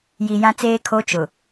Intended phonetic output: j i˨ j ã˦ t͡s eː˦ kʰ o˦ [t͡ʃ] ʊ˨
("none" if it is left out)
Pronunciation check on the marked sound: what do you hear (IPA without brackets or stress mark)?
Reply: t͡ʃ